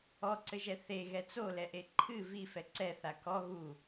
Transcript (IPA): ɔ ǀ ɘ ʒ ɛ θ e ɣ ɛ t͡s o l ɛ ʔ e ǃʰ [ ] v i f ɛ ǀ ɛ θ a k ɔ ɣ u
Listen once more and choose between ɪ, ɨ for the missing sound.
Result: ɨ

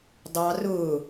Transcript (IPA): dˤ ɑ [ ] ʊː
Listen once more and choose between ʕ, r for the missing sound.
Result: r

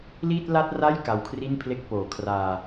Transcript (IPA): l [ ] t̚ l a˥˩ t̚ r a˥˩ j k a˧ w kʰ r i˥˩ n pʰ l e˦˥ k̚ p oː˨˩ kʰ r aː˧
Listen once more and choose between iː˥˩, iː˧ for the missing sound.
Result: iː˥˩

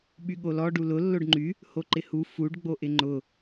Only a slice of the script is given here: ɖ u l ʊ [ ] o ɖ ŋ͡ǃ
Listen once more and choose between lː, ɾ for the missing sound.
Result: lː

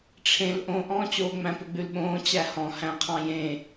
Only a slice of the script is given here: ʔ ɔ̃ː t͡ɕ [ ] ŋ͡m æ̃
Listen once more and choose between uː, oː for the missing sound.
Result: oː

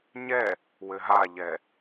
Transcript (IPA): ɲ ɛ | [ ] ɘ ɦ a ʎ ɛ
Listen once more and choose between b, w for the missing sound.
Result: w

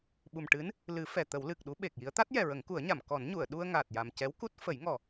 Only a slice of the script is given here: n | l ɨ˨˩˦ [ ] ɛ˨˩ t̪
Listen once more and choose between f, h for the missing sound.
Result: f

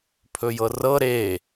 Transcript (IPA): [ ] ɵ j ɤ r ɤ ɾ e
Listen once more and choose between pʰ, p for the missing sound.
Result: pʰ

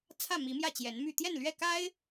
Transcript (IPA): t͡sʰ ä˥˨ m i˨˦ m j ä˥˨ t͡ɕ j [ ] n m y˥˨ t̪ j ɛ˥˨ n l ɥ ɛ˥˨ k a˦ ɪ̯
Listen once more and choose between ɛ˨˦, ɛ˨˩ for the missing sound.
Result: ɛ˨˦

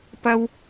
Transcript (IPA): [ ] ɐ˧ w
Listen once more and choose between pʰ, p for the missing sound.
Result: p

